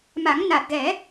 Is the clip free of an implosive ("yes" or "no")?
yes